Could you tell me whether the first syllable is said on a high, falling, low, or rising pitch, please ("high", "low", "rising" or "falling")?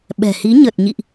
low